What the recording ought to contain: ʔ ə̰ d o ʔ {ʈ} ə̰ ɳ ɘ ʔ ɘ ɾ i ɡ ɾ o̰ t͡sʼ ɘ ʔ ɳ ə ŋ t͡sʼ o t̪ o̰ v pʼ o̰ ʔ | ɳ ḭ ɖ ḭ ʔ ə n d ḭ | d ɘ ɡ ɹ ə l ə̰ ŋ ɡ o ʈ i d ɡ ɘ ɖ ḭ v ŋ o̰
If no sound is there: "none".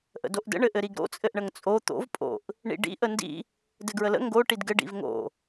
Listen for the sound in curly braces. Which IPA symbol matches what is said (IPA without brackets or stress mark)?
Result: d